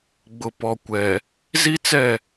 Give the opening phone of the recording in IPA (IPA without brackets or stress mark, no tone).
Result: ɡ͡b